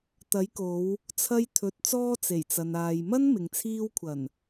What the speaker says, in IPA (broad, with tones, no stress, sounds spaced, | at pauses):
t̪ ɐ˨˥ j k o˨˧ w | t͡sʰ ɐ˧ j t̪ʰ ɵ˨ t̚ t͡s ɔː˧ t͡s e˨˩ j t͡s ɐ˨ n aː˨ j m ɐ˥ n m ɪ˨ ŋ t͡sʰ iː˧ w kʷʰ ɐ˨˩ n